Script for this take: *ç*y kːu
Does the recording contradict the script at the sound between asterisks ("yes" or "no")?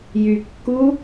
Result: yes